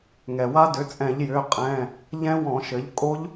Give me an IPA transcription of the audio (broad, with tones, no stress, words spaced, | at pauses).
ŋɛ˩wa˦˥ dʏ˩˥t͡sʼɛ̃˧˩˧ʎjʏː˩˧˩ qʼɛ̃ː˩˧˩ | ʎɛ̃˦˥wɔ̃˧˩˧ʃɘ˩˥ʎ kʼo˦˥ʎ